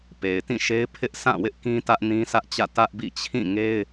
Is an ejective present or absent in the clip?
absent